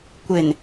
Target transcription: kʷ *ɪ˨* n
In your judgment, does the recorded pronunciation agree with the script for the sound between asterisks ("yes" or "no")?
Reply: yes